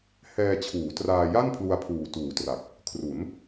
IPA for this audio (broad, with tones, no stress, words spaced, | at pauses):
hɛː˧t͡ɕʰuː˩˦traː˧ja˥˩n pʰlu˧a̯pʰuː˨˩ tuː˨˩tra˨˩k̚ | kʰru˩˦n